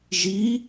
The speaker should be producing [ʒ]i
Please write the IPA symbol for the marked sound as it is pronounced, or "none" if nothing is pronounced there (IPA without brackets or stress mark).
ʒ